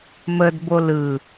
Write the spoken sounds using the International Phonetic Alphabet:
m ə d b o l ɯ

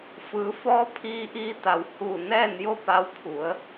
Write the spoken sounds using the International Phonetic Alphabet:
f ɯː˩˧ f ɔː˧˥ pʰ iː˧ ʔ iː˧ t̪ a˩ w h uː˧˩ n ɛː˥˨ n j o˥˨ p a˧ w pʰ u˩˧ ə̯

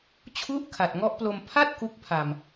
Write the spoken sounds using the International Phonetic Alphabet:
t͡ɕʰ u˥˩ ʔ kʰ a˨˩ t̚ ŋ ɔ˦˥ ʔ p l o˧ m pʰ a˥˩ t̚ k u˦˥ k̚ pʰ a˨˩ m

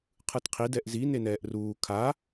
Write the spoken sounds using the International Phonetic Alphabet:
qʰ ɯ t qʰ i d ɛ ʔ z i n e n ɛː ʔ r uː kʰ a

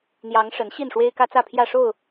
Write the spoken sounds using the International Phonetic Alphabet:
n̪ j ɑ˨˦ ŋ ʂ ə˨˦ n ɕ i˥˨ n ʂ w e˦ ɪ̯ k ä˦ t͡s ä˥˨ pʰ j ä˥˨ ʂ o˥˨ ʊ̯

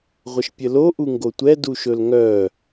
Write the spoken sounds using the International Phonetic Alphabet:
ʁʷ ə ʃ pʲ ə l o ʔ u ŋ ɡ o tʷ ɛ d u ʃ ɵ l ŋ œ

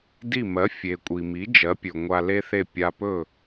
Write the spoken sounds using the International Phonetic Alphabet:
d i˥˩ m ɜ˩˥ fʲ e˩ kʷʼ i˩ m i˩˥ d͡ʒ ɜ˩˥ pʲ ɵ˩ ŋʷ a˧ l e˥ θ e˥˩ pʲ a˧ p ɵ˥˩

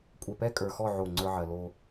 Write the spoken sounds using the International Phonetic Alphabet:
kʷʼ ɛ˨ p ɛ˦ kʼ ə˞˨ x ɔ˦˨ ʕ o˦˨ ŋ͡ǀ ə˞˦ ʕ ɜ˨ l o˨

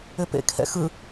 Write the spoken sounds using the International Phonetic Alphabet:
ʏ p ḛ kʰ ɛ̰ x ɯ

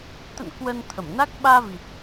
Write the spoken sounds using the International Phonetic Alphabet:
t̪ ə̰˧˨ n k w ə˧ n t̪ʰ ə˧˩ m n a˦˥ k̚ ɓ aː˧ v i˨˩ t̚

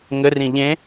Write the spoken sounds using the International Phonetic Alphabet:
ŋ ɘ r ĩ ʎ ẽ

